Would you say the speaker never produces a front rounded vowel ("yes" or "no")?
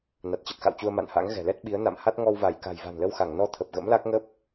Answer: yes